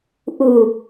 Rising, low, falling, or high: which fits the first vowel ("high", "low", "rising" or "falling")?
low